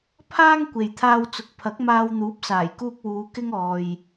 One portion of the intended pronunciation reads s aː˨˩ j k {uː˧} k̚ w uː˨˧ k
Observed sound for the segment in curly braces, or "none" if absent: uː˧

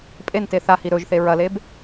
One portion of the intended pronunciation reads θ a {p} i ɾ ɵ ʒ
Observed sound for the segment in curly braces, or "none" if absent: h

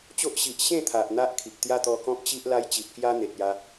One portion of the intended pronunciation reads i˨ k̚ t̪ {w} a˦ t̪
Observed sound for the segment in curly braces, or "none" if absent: j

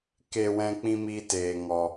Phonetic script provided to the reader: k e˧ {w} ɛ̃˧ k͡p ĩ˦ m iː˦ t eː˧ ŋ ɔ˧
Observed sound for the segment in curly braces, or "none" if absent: w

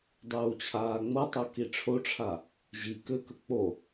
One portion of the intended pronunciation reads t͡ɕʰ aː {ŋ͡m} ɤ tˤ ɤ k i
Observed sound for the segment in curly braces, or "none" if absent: ŋ͡m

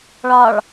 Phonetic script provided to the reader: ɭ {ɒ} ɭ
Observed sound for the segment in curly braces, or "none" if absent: ɒ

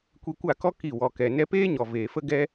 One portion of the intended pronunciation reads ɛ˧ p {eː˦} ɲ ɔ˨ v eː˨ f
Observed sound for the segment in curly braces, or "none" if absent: eː˦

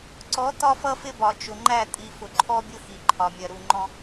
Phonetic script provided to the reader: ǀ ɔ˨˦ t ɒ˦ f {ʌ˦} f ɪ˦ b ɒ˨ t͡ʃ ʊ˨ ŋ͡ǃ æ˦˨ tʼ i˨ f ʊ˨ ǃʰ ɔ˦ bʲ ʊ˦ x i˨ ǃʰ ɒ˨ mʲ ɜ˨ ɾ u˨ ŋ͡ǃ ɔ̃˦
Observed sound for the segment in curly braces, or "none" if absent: ʌ˦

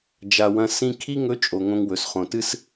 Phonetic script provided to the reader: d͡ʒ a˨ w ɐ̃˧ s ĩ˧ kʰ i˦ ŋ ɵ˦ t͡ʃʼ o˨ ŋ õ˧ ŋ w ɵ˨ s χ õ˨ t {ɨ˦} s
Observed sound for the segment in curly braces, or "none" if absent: ɨ˦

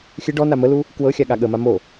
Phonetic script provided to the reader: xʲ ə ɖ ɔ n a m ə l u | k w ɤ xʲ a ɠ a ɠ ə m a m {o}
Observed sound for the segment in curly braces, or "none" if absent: o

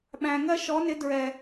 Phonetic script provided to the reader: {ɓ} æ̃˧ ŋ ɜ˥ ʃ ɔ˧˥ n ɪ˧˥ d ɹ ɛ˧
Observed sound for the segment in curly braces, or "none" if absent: ɓ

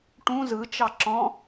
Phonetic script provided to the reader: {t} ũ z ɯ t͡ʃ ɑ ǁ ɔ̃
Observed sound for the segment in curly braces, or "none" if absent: ʈ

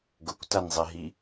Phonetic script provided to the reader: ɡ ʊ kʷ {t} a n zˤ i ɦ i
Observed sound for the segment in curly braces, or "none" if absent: t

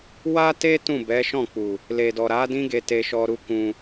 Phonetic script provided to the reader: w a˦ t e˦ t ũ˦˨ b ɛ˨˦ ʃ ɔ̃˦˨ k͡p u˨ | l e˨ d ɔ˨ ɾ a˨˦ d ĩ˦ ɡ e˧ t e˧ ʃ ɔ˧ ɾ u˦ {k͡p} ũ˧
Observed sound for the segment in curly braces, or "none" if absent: k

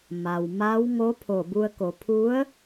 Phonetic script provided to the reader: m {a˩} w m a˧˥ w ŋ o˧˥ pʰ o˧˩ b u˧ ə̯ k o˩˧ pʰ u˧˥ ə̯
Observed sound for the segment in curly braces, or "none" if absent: a˩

